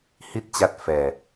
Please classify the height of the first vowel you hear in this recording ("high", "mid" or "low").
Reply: high